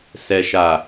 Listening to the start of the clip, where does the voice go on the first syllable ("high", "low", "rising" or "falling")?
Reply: low